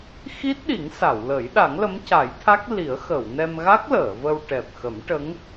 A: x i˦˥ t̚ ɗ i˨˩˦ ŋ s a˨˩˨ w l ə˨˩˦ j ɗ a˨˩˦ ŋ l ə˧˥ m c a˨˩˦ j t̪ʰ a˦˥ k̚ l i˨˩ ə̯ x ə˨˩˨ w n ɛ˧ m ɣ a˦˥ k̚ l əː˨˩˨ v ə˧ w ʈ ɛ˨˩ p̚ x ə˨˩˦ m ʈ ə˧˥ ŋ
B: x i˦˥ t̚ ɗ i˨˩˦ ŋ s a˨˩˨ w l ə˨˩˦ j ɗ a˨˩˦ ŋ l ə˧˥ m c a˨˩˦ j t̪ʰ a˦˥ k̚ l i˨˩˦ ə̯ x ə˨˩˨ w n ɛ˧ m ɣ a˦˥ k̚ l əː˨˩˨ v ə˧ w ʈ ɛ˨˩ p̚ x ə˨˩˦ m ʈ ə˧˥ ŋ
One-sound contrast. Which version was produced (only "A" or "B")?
B